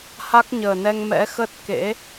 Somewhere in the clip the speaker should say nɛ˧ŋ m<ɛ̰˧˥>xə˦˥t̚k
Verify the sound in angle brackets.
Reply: correct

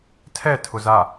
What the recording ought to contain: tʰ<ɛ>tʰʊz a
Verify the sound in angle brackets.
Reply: correct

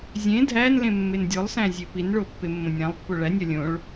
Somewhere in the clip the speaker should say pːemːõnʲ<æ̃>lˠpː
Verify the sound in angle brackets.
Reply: correct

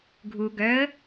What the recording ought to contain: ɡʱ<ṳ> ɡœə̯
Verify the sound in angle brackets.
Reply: incorrect: u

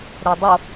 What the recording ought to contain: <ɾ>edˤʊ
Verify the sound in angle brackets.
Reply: correct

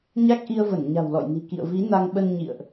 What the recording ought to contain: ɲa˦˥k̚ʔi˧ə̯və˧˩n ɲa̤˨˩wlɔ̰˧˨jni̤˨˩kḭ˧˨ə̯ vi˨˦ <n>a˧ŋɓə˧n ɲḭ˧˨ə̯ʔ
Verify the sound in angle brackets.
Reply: correct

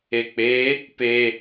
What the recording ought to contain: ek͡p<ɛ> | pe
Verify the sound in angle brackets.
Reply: incorrect: e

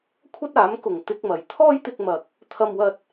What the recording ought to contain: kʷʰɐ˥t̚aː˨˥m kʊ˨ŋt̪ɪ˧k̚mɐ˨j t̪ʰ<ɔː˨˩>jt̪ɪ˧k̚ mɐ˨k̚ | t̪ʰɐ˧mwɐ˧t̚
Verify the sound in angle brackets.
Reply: incorrect: ɔː˥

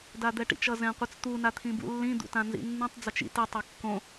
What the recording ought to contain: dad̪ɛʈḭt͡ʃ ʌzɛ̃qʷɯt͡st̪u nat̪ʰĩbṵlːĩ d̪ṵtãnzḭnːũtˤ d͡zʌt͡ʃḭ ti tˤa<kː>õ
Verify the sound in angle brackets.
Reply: correct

